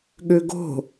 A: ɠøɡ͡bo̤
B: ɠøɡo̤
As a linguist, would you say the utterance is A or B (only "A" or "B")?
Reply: B